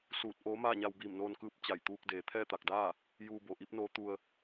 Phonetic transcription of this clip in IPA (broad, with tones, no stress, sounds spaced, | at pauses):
s uː˧˩ t̚ ʔ oː˧˥ m aː˥˨ ɲ a˧ w b iː˧˩ m n oː˧ n k ɯː˧˥ p̚ t͡ɕ a˧˩ j t̪ uː˧ k̚ d eː˩˧ t̪ʰ ɛː˥˨ t̪ a˧˩ k̚ d aː˥˨ | j uː˧ b o˩ ʔ i˧˥ p̚ n oː˧˥ t̪ u˧ ə̯